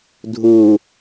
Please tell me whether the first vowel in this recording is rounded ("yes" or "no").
yes